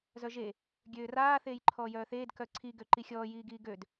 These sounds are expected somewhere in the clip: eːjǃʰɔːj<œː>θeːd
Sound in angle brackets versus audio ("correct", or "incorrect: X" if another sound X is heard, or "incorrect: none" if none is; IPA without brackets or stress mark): correct